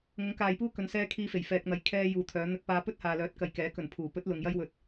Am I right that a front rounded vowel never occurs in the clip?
no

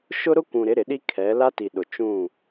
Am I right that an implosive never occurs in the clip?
no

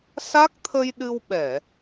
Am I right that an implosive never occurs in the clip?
no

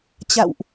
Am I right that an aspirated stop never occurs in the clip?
yes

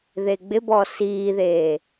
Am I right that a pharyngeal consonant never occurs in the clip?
yes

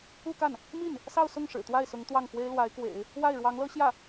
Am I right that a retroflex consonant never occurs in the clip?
no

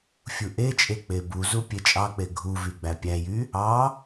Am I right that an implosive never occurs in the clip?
yes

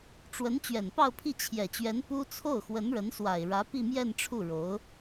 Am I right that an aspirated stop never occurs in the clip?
no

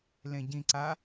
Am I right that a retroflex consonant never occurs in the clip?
yes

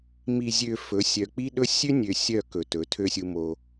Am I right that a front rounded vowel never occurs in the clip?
no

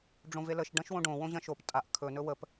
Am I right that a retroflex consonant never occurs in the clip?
no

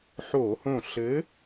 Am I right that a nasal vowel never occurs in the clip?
no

